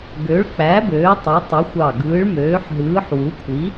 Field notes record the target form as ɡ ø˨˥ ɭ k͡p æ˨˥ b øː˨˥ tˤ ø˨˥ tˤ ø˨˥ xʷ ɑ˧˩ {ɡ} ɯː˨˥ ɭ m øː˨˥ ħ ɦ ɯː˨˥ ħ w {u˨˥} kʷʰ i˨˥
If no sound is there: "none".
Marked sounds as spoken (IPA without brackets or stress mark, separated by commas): ɡ, u˨˥